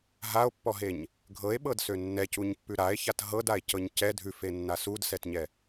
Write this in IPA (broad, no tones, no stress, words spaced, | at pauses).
ɦao̯pːɔɦeɲ | ɡʱɤe̯ɓɤdsø nːɛcuɲpːʉ ɾae̯çat ɦɤdae̯cɤɲ cɛ dʱʉfenːa sudsɛtɲɛ